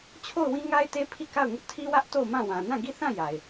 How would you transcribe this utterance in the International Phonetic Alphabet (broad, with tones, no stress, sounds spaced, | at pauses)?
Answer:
t͡ɕʰ o˦˨ ʊ̯ w ĩ˦ ŋ a˦ ɪ̯ t e˦ pʰ i˦˨ k a˦˨ ʊ̯ ŋ ʊ˦ ʔ tʰ i˦ w ä˦ ʔ t o˦˨ ʊ̯ m ã˦˨ w ã˨ n ã˦˨ ɡ i˦˨ θ ã˦˨ j a˨ ɪ̯